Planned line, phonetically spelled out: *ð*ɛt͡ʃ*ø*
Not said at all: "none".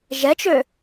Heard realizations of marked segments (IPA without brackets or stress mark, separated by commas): ʒ, ø